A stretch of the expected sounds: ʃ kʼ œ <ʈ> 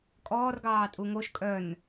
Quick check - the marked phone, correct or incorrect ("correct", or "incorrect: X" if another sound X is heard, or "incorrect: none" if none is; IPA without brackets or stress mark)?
incorrect: n